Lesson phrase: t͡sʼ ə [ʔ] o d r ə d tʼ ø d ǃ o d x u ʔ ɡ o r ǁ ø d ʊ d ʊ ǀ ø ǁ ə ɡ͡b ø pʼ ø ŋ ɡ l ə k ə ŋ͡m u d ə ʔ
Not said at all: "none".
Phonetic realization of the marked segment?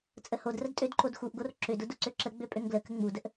h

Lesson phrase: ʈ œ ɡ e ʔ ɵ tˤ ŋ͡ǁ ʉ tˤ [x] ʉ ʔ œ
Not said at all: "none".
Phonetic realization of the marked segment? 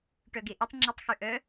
x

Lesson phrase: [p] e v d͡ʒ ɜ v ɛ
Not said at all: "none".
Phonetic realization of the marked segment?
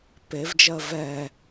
p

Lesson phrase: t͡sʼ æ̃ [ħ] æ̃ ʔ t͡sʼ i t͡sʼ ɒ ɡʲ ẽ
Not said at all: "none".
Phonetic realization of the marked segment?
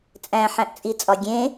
ħ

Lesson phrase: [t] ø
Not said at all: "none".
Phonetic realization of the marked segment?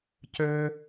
c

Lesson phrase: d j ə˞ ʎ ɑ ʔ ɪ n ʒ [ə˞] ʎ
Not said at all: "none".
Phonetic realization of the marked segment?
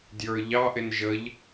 ə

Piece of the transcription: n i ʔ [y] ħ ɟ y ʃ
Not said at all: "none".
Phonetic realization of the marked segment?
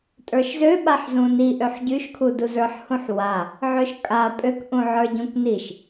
ø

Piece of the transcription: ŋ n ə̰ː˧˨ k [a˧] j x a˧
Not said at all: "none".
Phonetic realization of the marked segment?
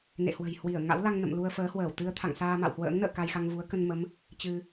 a˧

